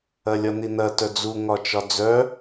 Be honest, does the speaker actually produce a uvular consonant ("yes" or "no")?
no